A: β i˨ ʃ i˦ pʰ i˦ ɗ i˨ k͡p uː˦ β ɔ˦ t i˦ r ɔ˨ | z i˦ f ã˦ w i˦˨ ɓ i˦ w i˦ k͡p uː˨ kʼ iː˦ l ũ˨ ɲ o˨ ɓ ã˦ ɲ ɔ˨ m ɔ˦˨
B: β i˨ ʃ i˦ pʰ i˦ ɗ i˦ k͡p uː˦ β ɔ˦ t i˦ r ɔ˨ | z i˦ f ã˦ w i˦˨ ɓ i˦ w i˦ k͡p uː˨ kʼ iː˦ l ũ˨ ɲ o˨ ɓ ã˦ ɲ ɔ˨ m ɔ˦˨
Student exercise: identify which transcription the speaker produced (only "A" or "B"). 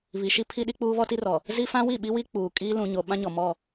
B